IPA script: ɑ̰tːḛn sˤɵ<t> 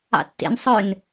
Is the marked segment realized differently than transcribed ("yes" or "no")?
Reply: yes